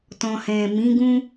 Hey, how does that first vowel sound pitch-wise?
low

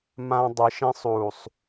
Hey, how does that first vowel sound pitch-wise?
high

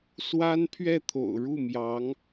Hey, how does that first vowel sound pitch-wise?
high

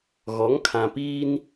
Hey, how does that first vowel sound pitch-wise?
rising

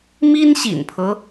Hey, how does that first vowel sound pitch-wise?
high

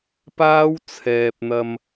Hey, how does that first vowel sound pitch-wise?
high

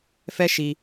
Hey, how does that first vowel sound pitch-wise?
high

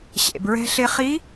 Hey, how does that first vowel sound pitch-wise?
low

